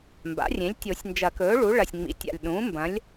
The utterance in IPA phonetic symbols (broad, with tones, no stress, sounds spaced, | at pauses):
m b a̰˩˥ rʲ ẽ˩˥ lʲ tʲ o˨˩˦ sʲ n d͡ʒ ɐ˨˩˦ k ɵː˩˥ ɭ u˩˥ ɭ ɐ˨˩ sʲ ŋ͡m ḭ˩˥ tʲ a̰˨˩ lʲ ɗ ũː˩˥ m b ɐ̃˩˥ lʲ